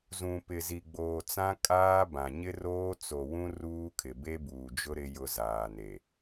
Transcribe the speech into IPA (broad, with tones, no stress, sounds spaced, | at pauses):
z ũ˨ p ɪ˨ z i˨ ɡ͡b oː˨ t͡s ã˦ kʼ aː˦ b ã˨ ɲ ɪ˦ r oː˦ t͡s o˨ w ũ˦ r uː˦ kʰ ɪ˨ b e˦ b uː˨ d͡ʒ ʊ˦ ɾ ɪ˦ j ʊ˦ z aː˨ n e˨